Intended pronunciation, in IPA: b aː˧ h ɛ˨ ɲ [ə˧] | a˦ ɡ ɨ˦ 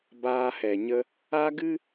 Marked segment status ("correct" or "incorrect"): correct